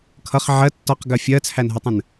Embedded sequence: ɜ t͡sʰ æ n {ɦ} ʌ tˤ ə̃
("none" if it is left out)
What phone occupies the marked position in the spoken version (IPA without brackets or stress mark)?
ɦ